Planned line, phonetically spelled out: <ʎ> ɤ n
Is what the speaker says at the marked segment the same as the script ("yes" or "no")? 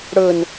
no